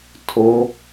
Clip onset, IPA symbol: tʰ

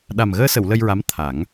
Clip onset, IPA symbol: ɗ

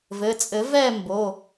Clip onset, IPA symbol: v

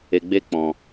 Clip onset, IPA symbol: e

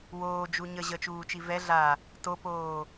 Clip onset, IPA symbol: w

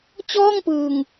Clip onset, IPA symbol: t͡ɕ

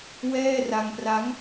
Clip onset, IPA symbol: w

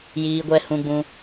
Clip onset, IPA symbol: j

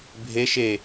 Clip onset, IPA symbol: bʱ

